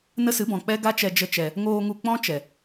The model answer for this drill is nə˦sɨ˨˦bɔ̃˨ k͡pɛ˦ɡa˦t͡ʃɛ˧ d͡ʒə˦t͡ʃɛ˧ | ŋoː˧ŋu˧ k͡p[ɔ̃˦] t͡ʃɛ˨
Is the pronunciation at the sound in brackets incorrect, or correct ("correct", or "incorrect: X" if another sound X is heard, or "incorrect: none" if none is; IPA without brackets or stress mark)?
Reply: correct